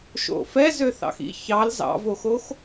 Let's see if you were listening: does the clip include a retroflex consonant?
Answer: no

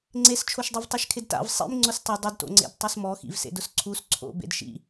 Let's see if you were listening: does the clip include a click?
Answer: yes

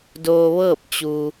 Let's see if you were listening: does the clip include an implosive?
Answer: no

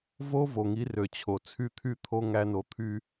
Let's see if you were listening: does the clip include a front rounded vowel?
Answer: yes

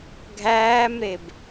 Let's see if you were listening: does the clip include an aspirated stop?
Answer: no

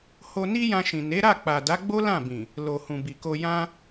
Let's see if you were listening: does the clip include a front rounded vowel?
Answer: no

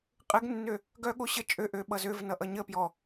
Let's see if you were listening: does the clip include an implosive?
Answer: yes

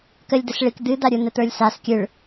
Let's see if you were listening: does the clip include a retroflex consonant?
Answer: yes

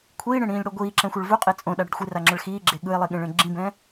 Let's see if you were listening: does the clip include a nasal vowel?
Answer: yes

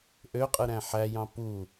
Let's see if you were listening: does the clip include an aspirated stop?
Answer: no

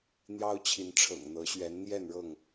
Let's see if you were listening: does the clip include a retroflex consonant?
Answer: yes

